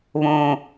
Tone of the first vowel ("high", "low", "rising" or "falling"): low